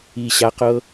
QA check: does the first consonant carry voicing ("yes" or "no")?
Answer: no